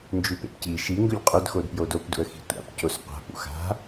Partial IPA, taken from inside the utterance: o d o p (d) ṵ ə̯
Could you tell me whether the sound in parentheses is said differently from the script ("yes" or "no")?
no